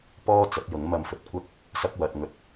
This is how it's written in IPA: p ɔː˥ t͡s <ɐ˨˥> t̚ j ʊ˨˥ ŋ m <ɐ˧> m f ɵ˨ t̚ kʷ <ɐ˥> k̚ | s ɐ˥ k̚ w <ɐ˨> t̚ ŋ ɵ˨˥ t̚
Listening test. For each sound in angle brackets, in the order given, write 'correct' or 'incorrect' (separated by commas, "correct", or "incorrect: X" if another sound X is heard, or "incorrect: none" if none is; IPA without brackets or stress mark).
correct, correct, correct, correct